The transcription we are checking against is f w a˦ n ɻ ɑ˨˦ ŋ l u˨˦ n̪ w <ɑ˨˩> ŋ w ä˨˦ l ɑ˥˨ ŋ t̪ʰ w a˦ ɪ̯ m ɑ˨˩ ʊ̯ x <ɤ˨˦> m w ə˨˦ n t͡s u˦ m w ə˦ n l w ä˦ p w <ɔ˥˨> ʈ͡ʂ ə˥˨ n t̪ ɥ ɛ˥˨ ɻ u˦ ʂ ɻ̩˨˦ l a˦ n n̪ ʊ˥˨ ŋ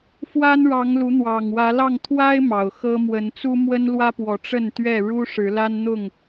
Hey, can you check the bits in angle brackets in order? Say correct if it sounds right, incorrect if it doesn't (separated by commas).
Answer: correct, incorrect, incorrect